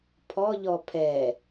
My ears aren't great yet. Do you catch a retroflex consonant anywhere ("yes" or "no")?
no